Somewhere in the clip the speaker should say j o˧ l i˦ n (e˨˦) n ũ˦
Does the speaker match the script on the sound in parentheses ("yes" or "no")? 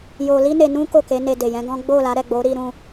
no